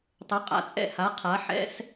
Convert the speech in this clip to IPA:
tˤ ɘ˨˦ qʼ a̰˨˦ t͡sʼ ɛ̰˦˨ h a˨˦ qʰ a˨˦ ħ ɛ̰˧˥˧ s

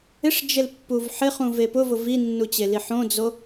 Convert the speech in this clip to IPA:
ɪ ʂ d͡ʒ e l pː u v ħ ɪ χ ũ v e p ʊ v ʊ v i nː u t͡ɕ e l i ħ õ d͡z o

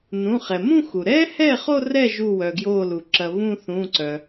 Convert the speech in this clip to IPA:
n ũ˩˧˩ χ ɛ˩ m ũ˥˧ x u˩ ɾ ɛ˥ h ɛ˥˩ χ o˥˧ r ɛ˥˩ ʒ u˧˩ w œ˩ ɡ j o˧˩ l u˩ ǁ ɐ˩ β ũ˧˩ θ ũ˩˧˩ ǀ œ˩

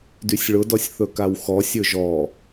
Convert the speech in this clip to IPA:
d y sʲ ɭ ʊ d ɔ sʲ θ ɵ k a w x ɔ sʲ ɵ ʒ ɔ

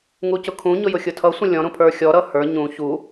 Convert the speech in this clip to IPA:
ŋ u c ʊ kʰ ũ ɲ ʊ j ʊ xʲ ʊ tʰ ʌ sʷ ə̃ lʲ ɔ̃ ɾ ũ pʰ ə˞ xʲ ɔ ɾ ʌ h ə˞ ɲ ũ ç u

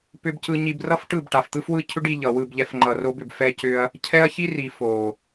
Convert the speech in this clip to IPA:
p ʏ˧ b c ɯ˧ ɲ i˧ b r ʌ˦ f ʈ ɯ˦˨ b ʈ a˨ f t̪ ɯ˦ f w ɯ˦ cʰ ʏ˦ ɖ i˧ ʎ ʌ˨ w ɯ˦˨ b ʎ ɛ˧ f ŋ͡ǃ ʌ˨ r o˧ b ʏ˨ b f ɛ˧ c ʏ˧ ɐ̯ | cʰ ɛ˦ ɐ̯ ç i˦ r i˨ f o˨

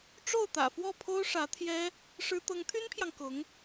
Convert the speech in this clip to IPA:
ʈ͡ʂ o˥˩ ʊ̯ t̪ ä̰˨˩ f w ɔ˥˩ pʰ o˥ ʊ̯ ʂ ä˧˥ t̪ʰ j ɛ˥ | ʂ ɻ̩˥ t̪ ɤ˧˥ ŋ t̪ʰ y˥ n pʰ j ɑ˨ ŋ k ʊ˧˥ ŋ

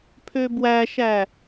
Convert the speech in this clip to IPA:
pʰ ø b w æ ʃ æ

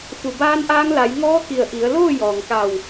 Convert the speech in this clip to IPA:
f u˩ b aː˧ n ʔ aː˧ ŋ l a˩˧ j ŋ ɔː˧ k i˧˩ ə̯ ʔ i˩˧ ə̯ l oː˥˨ j ɔː˩ ŋ k a˧˩ w

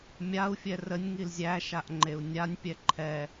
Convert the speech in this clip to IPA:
mʲ a u̯ fʲ ɛ r ə nʲ ŋ i l zʲ æ ʃ a ʔ ŋ͡ǃ e u̯ nʲ a nʲ pʲ ɛ ǃʰ ɛ

